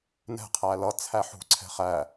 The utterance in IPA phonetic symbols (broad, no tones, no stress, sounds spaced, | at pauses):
n ɛ̤ qʰ æ l ʌ t͡sʰ æ ħ ṳ ǀʰ ɛ̤ χ æ